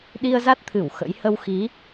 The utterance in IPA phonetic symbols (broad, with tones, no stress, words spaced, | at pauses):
ɗi˧ə̯za˦˥t̚t̪ʰɨ˧˩w xə̰˧˥j hə˧wxi˨˦